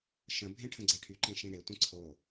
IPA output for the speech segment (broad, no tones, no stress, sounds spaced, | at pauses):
ʃ ə̃ bʱ ẽ ʈʰ ə̃ ɡ͡ǀ ɛ ʈʰ y ǃ ẽ ʃ ĩ ɽ e tʷ ə̃ ǀʰ o